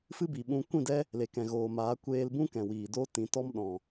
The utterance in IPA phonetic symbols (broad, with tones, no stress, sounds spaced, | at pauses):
f ɨ˦ b i˨ ɓ ũ˧ kʷ ĩ˦˨ d ɛ˦ | l e˨ k ɛ̃˨ ɣ oː˨ m aː˨˦ kʷ eː˧ l b ũ˦ k ɛ̃˨ w iː˨ d o˦ t ĩ˨ t ɔ˦ m ɗ ɔ̃˨